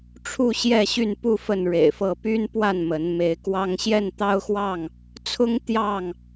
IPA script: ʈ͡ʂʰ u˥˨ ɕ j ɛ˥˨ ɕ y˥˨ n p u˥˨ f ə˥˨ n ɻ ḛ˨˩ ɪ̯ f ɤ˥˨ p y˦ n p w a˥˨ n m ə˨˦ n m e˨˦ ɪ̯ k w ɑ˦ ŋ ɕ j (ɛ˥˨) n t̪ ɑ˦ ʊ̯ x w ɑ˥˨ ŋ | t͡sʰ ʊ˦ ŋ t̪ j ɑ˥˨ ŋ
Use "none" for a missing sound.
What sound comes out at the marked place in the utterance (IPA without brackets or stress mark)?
ɛ˥˨